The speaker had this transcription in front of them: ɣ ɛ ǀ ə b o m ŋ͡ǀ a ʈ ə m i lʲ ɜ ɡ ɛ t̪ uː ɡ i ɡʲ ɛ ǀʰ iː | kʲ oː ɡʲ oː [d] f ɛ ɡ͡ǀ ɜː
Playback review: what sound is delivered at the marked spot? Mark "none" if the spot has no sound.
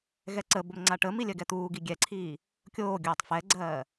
tˤ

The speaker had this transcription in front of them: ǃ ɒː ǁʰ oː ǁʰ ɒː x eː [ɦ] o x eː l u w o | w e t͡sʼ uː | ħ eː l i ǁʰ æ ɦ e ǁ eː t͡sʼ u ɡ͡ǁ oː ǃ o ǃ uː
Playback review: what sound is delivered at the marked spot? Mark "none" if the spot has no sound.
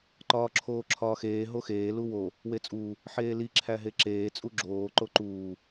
ɦ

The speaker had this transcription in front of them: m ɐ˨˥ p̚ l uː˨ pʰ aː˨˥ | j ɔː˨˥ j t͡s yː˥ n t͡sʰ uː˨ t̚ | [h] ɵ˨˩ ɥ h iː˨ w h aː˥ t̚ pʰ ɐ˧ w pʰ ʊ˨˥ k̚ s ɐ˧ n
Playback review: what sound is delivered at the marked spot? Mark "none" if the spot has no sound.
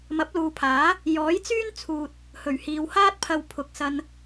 h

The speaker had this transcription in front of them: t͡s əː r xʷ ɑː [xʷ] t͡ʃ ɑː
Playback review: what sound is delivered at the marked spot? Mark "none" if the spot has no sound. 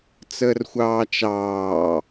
none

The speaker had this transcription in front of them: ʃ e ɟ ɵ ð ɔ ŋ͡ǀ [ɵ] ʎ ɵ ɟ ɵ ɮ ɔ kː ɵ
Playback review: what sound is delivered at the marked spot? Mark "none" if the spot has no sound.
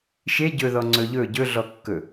ɵ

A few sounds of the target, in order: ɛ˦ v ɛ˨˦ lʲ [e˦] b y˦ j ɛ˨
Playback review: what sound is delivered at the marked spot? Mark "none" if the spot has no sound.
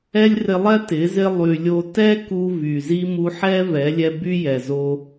ɛ˦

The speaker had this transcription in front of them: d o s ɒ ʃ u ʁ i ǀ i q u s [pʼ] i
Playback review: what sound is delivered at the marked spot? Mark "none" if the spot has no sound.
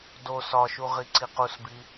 b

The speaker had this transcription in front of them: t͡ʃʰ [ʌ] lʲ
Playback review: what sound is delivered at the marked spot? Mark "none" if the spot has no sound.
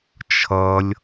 ʌ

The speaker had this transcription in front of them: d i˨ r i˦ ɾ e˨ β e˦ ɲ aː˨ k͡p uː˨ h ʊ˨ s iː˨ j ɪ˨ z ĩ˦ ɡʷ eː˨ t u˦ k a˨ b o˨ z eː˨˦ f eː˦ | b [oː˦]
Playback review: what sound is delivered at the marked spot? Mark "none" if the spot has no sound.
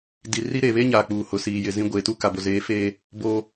oː˦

